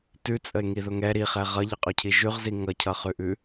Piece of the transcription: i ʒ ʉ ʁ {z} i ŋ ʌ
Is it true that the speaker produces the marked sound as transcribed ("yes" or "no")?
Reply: yes